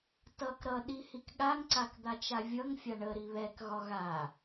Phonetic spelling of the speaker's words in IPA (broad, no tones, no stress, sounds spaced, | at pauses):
t ʌ k ɾ ʌ ɗ i h i k ɠ a ŋ ǀ a k d̪ a t͡ʃ a vʲ ʌ ŋ fʲ a ɳ ə ɾ i β ɛ k ɣ ɒ ɣ a